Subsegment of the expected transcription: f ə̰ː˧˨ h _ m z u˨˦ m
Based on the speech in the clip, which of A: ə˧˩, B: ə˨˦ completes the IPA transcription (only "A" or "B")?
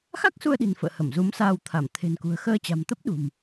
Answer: A